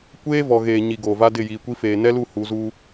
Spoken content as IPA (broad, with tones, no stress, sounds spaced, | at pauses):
kʷ eː˦ v ɔ˨ ɣ eː˨ ɲ i˨ ɡ oː˨ v a˦ d ɪ˦˨ j iː˨ kʷ i˦ f eː˨ n ɛ˦ l u˦˨ h u˨˦ z u˦